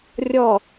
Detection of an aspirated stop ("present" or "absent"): absent